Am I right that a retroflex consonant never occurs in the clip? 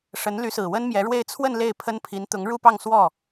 no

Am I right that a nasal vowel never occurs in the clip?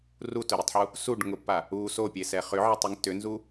yes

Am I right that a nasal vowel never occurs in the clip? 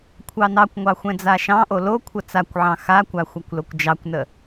no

